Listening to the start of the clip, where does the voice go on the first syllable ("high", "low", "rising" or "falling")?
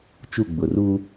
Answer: falling